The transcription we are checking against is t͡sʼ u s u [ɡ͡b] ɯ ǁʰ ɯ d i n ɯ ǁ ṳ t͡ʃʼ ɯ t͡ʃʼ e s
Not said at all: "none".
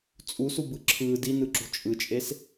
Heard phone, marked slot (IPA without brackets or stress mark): b